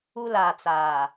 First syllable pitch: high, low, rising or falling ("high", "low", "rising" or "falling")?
high